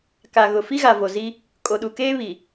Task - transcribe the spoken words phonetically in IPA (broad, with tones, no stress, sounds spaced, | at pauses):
k a˨ ɣ ʊ˨ f i˦ ɣ a˨ v o˨ z i˦ | kʼ o˨ ɗ u˨ k eː˦ β i˨